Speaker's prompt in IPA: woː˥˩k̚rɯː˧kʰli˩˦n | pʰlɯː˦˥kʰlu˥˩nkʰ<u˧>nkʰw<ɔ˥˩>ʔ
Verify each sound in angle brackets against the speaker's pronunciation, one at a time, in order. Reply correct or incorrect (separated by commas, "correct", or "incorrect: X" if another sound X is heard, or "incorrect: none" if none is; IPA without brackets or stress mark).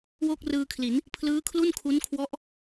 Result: incorrect: u˦˥, incorrect: ɔ˦˥